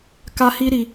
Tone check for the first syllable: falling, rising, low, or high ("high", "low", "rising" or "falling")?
high